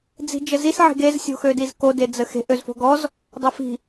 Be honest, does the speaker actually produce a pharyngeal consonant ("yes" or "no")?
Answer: yes